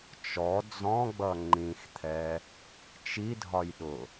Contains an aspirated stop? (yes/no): yes